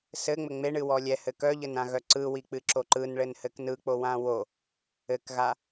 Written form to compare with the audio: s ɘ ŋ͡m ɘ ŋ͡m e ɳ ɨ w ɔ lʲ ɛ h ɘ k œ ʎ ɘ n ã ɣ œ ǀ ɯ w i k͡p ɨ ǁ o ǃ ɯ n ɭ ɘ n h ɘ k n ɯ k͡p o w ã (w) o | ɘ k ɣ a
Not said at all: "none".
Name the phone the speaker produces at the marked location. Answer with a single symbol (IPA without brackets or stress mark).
w